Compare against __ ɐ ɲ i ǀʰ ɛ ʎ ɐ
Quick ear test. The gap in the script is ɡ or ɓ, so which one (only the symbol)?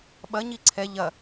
ɓ